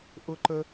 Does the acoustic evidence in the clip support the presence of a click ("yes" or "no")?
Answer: yes